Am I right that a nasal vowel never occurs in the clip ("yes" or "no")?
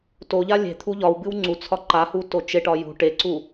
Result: yes